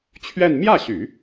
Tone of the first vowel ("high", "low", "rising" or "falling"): falling